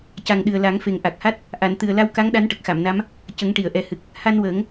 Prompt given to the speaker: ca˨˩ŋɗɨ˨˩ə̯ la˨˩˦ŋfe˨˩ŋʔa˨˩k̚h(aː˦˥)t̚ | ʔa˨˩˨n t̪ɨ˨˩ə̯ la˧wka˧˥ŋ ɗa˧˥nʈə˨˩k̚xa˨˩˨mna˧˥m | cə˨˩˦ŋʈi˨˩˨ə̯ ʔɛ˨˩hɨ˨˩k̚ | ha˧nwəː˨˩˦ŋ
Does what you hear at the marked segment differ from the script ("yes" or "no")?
yes